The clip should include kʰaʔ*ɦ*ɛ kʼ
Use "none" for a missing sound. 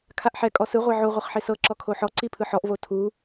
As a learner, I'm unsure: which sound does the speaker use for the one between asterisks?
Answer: ħ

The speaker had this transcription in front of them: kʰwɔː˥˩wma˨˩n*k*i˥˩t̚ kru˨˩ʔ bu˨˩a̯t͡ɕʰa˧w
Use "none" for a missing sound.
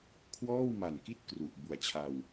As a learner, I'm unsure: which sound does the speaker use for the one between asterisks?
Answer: k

